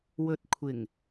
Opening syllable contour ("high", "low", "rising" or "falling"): low